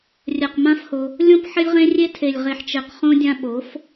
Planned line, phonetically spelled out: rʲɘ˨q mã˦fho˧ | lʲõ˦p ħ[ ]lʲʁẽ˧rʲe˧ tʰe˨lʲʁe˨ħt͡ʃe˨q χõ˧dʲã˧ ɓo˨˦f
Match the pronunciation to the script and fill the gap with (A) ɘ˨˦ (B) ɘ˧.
B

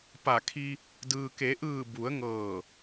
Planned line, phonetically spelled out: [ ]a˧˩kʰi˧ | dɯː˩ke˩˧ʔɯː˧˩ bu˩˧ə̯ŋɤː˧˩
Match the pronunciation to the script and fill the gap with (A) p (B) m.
A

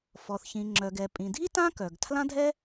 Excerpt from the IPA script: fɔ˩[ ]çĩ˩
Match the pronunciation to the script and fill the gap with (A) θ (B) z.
A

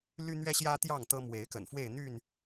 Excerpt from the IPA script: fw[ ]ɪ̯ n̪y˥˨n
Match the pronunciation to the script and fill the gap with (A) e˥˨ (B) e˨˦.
A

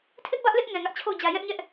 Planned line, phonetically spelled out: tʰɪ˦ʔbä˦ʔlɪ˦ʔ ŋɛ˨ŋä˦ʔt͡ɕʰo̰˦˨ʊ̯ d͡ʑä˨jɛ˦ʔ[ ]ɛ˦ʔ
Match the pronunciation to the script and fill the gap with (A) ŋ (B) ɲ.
B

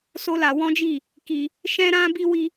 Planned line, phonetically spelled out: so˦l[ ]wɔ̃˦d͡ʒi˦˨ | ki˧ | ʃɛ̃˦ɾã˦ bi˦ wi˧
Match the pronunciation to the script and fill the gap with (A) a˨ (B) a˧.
B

